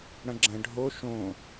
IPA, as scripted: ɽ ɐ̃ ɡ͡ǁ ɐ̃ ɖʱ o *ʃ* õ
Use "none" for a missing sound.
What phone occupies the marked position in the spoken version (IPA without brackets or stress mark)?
ʃ